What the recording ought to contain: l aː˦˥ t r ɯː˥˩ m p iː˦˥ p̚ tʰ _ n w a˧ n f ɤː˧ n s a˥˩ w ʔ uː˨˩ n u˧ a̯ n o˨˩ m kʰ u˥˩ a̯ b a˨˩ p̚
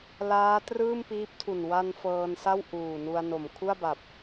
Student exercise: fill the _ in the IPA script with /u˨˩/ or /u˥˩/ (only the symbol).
u˨˩